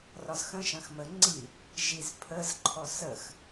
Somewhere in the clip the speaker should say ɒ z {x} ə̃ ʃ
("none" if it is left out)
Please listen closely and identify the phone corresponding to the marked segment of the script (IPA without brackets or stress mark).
x